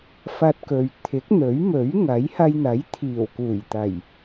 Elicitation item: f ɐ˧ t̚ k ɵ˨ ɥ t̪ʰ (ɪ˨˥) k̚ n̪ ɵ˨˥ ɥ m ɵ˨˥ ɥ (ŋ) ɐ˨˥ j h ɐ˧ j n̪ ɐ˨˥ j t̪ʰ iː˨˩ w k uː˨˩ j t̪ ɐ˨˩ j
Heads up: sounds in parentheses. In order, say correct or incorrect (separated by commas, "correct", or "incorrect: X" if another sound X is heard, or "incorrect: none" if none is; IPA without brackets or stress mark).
correct, correct